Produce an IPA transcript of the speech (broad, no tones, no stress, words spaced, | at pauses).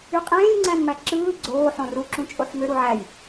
yqʼẽːjŋ͡ǀæ̃nmæ ǁɯː ɡ͡ǀoː ħõruǁũ t͡ʃʼoħmø ɾuʕæj